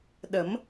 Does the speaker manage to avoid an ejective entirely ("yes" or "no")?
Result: yes